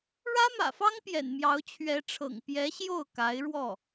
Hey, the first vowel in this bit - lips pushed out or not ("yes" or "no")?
no